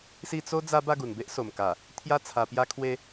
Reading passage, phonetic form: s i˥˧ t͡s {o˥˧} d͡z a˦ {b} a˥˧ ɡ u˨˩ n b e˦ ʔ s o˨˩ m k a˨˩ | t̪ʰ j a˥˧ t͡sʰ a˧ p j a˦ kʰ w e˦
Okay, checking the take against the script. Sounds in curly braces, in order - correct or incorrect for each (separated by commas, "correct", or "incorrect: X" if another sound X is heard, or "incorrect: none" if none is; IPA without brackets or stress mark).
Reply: incorrect: o˦, correct